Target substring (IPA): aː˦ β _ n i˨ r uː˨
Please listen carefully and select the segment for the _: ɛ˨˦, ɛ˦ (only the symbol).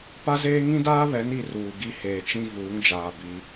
ɛ˨˦